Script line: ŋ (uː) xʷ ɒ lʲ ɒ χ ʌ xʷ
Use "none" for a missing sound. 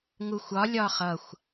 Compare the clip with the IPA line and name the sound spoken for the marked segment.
u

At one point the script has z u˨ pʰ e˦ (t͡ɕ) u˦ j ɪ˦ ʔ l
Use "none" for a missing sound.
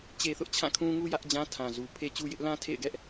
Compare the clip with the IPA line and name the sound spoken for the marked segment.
t͡ɕ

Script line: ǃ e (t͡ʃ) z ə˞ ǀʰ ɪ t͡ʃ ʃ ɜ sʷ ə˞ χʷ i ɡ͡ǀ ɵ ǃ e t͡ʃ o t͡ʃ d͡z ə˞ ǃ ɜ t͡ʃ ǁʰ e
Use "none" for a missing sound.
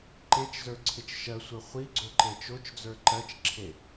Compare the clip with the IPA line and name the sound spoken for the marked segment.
t͡ʃ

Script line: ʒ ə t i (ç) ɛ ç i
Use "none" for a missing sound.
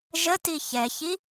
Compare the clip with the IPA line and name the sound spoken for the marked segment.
ç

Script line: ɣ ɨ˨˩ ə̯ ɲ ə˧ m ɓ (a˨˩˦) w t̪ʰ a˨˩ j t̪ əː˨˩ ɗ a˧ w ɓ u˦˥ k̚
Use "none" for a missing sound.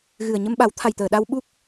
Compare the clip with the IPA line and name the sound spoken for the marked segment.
a˨˩˦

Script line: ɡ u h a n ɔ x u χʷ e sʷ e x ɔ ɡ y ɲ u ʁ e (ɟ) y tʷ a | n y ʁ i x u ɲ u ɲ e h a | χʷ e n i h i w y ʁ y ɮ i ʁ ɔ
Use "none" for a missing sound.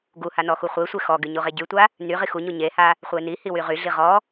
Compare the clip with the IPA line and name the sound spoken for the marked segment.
ɟ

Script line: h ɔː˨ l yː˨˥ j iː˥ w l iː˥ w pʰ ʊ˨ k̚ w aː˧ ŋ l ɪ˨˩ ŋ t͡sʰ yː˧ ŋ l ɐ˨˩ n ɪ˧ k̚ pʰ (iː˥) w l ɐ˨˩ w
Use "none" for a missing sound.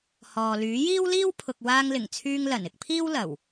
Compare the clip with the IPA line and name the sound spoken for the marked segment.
iː˥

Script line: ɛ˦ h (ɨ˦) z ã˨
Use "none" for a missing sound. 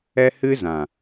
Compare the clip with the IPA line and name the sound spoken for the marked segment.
ɨ˦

